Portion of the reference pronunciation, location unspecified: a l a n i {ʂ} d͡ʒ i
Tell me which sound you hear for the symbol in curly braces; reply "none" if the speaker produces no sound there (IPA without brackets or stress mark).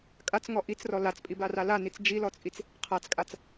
t͡s